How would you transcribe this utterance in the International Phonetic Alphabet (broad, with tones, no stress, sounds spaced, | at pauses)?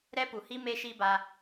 ɾ ɛ˦ p u˨ h i˦ m e˦ ʃ i˦ b a˧